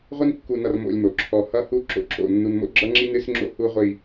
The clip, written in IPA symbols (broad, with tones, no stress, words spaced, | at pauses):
ʁʷɨ˦nkːu˨nʌ˨r mo̰˦lʲmo˨ǁʰɔ˦˨ hʌ˦hu˦ ǁo̰˨ǁo̰˨ nːu˨nmo̰˦ɡ͡ǁʌ˦ŋ͡ǁi˦ nɨ˦sŋ͡ǁo̰˦ hu˦ʁʷi˦˨